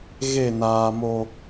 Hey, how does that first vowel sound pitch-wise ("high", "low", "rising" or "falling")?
falling